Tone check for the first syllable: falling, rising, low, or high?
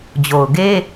low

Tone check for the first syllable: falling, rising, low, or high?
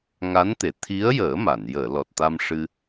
rising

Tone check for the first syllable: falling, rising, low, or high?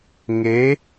rising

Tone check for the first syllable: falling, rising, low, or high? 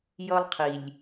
high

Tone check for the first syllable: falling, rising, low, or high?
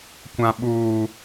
low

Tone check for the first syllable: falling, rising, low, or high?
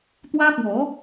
high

